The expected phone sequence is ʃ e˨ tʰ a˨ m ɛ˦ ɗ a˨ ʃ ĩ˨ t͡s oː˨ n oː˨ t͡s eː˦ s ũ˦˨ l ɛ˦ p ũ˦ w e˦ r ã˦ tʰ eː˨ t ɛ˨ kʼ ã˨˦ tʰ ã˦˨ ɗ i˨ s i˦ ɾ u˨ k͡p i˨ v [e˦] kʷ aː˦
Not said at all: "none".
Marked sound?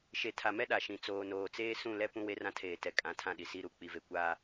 e˨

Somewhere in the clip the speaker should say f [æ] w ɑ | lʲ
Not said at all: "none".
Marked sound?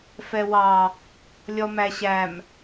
ɛ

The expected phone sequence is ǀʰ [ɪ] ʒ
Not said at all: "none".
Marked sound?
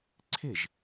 ɪ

